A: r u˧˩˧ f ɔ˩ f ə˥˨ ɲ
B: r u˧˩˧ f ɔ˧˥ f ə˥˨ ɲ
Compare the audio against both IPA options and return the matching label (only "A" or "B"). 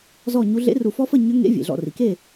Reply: B